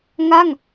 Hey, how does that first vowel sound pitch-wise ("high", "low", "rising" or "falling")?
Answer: falling